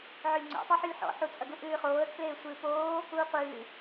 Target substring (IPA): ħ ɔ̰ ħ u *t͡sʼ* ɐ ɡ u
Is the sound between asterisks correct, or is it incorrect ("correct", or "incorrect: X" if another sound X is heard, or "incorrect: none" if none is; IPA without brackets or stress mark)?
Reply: correct